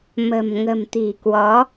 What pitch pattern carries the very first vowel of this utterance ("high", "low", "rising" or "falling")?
low